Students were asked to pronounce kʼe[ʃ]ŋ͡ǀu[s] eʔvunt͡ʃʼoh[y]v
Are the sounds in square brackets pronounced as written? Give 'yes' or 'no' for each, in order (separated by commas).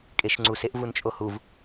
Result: yes, yes, no